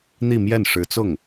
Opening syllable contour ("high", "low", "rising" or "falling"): falling